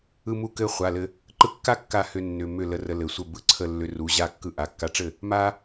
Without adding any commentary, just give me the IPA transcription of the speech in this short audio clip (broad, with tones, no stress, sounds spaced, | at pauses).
ɯ˧ m u˧ k ɘ˧ χʷ a˩˧˩ l ɘ˧ | ǃ ɯ˧ kː a˥˩ kː a˥˩ h ʏ˧ nː ʏ˩˧˩ m ʏ˥˩ l ə˧ r ə˧ l ɘ˩˧˩ sʷ ə˥˩ b ɯ˧ ǀʰ ə˥˩ lː ʏ˧ r u˩˧˩ ʑ a˥˩ kː ɯ˧ ʔ a˩˧˩ kː a˧ ʈ͡ʂ ɘ˥˩ | m a˧